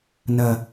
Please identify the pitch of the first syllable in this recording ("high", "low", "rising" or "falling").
low